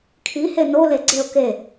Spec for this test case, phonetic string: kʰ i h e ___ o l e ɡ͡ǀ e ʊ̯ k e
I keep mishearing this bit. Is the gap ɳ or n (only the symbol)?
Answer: n